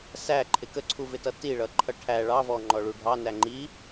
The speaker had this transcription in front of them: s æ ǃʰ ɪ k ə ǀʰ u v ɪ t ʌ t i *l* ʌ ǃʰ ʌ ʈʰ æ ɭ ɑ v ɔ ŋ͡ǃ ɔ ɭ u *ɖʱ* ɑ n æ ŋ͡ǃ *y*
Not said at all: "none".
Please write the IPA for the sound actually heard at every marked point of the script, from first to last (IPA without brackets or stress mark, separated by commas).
ɭ, ɖʱ, i